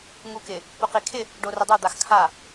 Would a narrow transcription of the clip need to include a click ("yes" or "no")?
no